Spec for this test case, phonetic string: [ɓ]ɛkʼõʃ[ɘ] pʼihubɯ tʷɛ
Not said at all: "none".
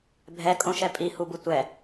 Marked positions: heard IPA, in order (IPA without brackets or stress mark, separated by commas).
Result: bʱ, ɛ